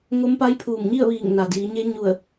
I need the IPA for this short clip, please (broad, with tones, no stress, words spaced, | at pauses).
ŋo˧˥mpa˧˥j pʰuː˧˩mɲi˥˨ə̯ʋiː˧˩ŋ na˩diː˩˧ɲe˧˥ ɲu˧˩ə̯